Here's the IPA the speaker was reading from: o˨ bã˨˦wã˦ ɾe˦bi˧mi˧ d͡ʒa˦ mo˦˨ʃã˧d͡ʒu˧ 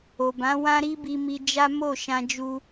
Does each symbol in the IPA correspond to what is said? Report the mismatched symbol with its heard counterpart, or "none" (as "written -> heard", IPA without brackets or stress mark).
e˦ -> i˦